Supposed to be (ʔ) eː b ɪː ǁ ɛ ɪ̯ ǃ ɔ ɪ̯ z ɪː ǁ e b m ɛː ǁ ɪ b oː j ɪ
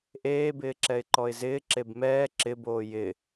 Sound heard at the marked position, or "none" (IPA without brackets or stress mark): ʔ